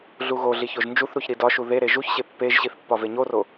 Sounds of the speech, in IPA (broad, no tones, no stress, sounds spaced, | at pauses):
ɮ u ɣ o ɮ i ç o ʒ n d͡ʒ u θ ɾ u ç ɾ i d ɒ ʃ u ð e ɾ e ʒ u ç ɕ e pː e ʒ ɕ i θ pː ɒ v e ɲ o r o